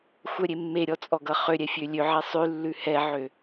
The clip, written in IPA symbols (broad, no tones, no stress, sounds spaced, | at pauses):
xʷ œ ɾʲ e mː e ɾʲ ɔ t͡sʼ ɔ ɡ ʌ χ ø ɾʲ ɛ fʲ ø lʲ ø ʕ ɛ sˤ ʉ lː ʉ h ɛ ʕ ø